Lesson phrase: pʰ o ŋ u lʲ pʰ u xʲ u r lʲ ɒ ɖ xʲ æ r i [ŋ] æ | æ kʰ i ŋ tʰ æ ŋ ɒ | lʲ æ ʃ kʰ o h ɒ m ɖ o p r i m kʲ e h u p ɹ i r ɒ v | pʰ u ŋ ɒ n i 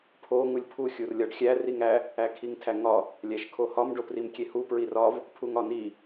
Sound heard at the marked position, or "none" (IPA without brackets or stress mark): ŋ